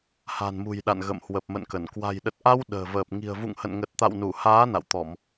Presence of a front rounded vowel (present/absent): absent